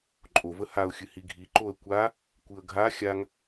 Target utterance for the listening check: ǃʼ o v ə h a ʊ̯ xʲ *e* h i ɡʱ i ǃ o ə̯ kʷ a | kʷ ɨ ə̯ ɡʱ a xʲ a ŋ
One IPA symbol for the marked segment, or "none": ɨ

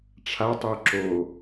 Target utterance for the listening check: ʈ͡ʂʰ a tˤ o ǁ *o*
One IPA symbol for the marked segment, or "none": o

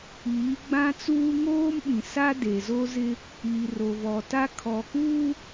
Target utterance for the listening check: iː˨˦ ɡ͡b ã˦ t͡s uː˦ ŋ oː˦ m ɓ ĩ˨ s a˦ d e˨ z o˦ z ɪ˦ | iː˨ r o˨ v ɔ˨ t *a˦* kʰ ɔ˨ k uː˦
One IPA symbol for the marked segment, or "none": a˦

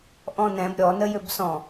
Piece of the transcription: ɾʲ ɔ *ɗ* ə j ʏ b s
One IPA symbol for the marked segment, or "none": n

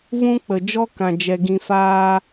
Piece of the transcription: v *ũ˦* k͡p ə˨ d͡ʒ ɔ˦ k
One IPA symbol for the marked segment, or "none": ũ˦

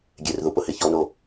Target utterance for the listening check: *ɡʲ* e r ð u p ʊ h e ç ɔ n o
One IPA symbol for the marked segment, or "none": ɡʲ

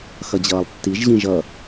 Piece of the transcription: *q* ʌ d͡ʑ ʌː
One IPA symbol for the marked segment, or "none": x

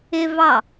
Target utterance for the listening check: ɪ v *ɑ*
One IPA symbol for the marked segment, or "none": ɑ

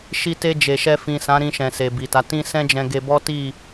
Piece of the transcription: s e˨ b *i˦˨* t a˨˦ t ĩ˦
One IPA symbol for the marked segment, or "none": i˨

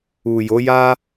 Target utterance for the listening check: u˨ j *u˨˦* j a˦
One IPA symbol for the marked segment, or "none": o˨˦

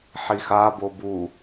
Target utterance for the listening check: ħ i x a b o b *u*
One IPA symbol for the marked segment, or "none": u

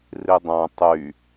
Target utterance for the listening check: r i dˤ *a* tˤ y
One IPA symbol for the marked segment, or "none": ã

